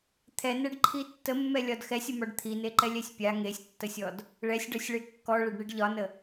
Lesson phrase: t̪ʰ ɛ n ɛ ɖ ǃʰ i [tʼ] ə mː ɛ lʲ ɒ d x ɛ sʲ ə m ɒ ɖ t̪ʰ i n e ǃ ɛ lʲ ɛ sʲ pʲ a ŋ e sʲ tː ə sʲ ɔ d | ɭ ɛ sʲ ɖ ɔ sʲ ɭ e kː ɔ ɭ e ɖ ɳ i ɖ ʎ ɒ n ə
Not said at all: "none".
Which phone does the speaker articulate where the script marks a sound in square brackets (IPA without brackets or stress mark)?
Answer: tː